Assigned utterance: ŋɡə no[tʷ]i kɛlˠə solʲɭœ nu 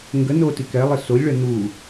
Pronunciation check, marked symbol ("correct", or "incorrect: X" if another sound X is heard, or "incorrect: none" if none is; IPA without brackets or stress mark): incorrect: t